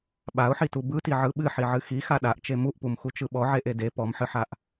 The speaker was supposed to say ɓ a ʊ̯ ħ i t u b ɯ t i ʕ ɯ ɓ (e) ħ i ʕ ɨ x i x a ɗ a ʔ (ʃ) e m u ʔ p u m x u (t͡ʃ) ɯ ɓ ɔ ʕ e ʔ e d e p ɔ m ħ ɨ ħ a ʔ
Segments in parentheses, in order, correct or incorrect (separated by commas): incorrect, incorrect, correct